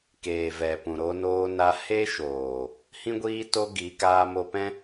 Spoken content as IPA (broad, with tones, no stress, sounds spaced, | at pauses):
k eː˨ v ɛ˨ p ũ˨ ɾ o˧ n oː˧ n a˧ h e˦ ʃ oː˨ | h ĩ˦ ɡʷ iː˦ t o˦ ɡ i˨˦ k aː˧ m o˧ p ɛ̃˦